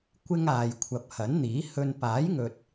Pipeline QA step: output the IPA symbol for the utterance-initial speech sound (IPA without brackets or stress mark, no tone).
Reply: kʷ